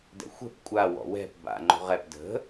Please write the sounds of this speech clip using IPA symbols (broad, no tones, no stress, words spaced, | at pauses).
dɛ̰xʷɛ̤p kʷʼa wɔ̰wɛ̤p ba̰ ŋ͡ǃo̤ʁɛp də̤